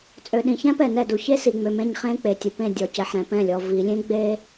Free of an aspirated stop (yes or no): yes